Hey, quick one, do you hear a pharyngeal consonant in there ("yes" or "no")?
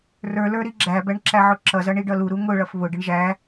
yes